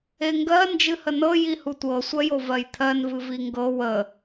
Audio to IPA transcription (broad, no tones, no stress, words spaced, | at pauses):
eŋɡɜ nd͡ʒɨhənɤ jihutʷɤ sʷɜjovɜjt̪ʰɜn vɨviŋɡɤ wə